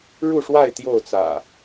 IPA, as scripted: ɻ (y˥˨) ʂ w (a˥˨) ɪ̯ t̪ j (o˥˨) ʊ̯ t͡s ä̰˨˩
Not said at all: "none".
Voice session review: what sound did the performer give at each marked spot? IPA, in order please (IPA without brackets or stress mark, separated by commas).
u˥˨, a˥˨, o˥˨